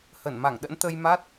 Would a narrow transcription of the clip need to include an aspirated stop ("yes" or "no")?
no